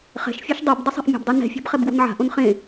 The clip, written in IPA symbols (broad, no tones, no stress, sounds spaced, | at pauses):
χ ɛ̤ ʃ fʲ a ʃ dˤ ʊ b dˤ ʊ sˤ ɛ̤ ʔ mʲ ɔ̤ b dˤ u n ɛ̤ fʲ ɔ̤ b χ ɛ b ɡ w o̤ n ʕ a̤ ʔ õ n χ ẽ